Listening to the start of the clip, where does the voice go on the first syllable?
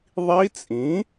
rising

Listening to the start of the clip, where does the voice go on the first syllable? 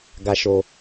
low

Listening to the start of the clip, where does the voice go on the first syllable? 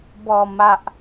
low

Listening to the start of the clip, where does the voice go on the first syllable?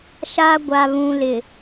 high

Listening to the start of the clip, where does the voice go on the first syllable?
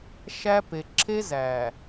high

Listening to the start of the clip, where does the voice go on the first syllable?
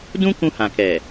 high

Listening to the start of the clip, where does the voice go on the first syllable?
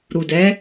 low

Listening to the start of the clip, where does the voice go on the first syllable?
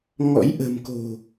rising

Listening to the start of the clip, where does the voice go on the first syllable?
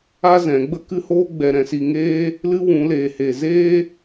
high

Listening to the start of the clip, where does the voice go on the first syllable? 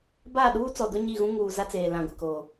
falling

